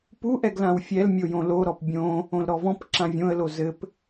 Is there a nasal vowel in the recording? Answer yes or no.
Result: yes